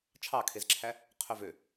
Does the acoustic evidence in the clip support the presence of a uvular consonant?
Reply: yes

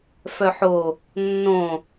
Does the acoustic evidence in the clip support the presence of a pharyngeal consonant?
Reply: yes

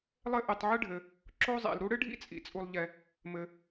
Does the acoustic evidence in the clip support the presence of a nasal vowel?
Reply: no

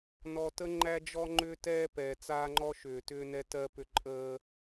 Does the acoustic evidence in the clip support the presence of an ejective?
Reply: yes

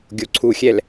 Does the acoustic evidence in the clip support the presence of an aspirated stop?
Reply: yes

